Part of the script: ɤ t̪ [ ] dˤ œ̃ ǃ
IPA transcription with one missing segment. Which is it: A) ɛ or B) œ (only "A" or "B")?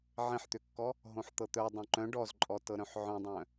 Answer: B